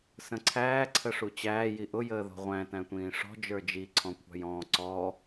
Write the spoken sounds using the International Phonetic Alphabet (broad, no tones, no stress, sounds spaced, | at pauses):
s ə̃ ǀʰ æː ǀʰ ə ʂ u t͡ɕ æː j i ʔ ʊ j əː ð ɔ̤ ʁʷ æ̃ t æ̃ tʷ ĩː ʂ ɔ̤ d͡ʒ ə˞ d͡ʒ i ǀʰ ɔ̃ kʷʰ ɑ̤ j ɔ̃ː ǀ ɔ